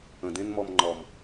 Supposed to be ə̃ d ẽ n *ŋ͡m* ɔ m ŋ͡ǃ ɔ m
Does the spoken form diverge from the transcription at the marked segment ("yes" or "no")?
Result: yes